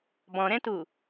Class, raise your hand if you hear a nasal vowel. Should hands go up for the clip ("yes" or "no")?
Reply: yes